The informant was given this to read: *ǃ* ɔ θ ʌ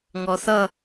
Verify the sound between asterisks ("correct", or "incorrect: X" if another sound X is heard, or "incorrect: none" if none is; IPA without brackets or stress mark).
incorrect: ŋ